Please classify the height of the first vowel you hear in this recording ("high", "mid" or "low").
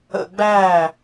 mid